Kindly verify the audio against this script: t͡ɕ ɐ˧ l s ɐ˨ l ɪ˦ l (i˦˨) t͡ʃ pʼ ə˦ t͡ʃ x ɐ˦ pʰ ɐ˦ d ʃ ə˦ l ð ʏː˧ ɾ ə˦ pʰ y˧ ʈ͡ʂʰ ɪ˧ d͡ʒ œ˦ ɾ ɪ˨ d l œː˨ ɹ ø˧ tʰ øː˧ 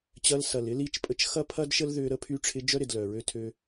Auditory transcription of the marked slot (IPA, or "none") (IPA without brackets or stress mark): i˦˨